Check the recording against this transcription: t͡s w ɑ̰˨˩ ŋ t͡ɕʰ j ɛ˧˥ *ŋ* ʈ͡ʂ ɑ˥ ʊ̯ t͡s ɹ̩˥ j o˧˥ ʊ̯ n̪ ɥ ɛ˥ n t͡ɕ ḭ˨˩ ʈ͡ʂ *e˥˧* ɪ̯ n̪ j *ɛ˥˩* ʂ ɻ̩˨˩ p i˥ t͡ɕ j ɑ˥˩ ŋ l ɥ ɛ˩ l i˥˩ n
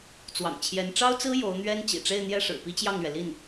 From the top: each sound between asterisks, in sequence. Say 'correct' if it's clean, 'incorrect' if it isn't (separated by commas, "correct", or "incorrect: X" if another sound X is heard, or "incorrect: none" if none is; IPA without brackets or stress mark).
incorrect: n, correct, correct